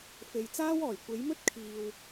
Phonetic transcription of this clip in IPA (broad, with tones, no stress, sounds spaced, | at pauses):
f e˨ j t͡s aː˥ w ɔː˨˩ j kʷ e˨˥ j m ɵ˥ t̚ kʰ iː˨ w